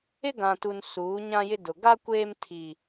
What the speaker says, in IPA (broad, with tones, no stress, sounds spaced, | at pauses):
ɪ˦ ɡ ã˨ t u˨ n s uː˨˦ ɲ ã˦ j ɪ˦ d ʊ˨ ɡ a˦ kʷ eː˦ m tʰ i˦